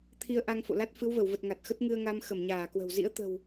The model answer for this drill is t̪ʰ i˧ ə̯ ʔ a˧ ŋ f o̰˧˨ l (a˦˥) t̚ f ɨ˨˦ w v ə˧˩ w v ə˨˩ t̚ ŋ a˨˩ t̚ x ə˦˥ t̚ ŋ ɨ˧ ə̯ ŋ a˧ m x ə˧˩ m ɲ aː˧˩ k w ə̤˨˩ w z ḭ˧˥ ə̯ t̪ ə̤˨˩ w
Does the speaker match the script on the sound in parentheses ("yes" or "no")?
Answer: yes